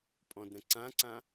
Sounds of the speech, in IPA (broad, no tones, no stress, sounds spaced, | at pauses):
pʼ ɔ̃ d ɾ ə̃ ǀ ã ǀ ã